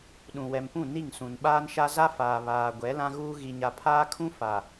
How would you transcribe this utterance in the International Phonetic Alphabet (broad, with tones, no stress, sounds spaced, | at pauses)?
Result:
ɗ ũ˨ w ɛ˨ m p ũ˦˨ n i˦˨ ŋ s ũ˨ n ɓ aː˦ n ʃ a˦ z a˦ f aː˨ β aː˨ ɡʷ ɛ˨˦ l ã˦ ɣ uː˦ ɣ i˨ ɲ a˨ pʰ aː˦ kʰ ũ˦ f a˨